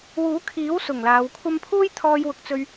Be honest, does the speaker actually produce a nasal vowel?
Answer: no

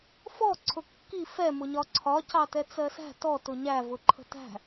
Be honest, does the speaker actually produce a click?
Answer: yes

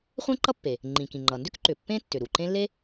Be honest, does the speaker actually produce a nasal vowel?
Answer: yes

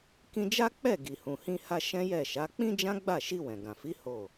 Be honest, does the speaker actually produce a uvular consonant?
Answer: no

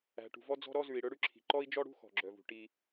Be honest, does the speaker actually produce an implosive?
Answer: no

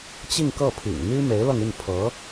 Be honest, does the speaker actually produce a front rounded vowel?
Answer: yes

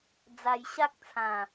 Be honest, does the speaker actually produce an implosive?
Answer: no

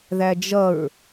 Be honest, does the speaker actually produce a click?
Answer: no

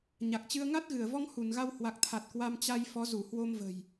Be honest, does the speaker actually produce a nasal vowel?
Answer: no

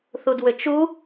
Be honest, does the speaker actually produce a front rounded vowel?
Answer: yes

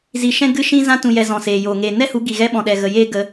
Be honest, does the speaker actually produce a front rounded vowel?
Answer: no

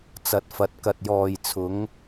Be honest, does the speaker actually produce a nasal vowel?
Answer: no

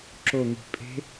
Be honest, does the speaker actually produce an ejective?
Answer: yes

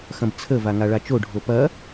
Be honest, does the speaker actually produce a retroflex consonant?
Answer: yes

